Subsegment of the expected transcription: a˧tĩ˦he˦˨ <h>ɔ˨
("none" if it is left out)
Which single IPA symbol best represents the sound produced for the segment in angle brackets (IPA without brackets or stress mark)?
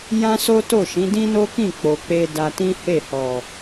h